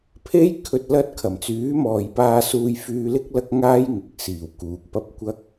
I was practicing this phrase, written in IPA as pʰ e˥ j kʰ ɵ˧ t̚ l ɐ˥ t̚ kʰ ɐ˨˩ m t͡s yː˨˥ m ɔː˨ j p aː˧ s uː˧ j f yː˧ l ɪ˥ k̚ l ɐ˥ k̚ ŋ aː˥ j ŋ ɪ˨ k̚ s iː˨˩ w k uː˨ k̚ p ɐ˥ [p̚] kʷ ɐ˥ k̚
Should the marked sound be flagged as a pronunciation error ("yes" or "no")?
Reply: no